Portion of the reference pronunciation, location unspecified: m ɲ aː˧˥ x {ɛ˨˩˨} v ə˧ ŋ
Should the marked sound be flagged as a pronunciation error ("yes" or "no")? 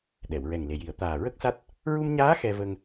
yes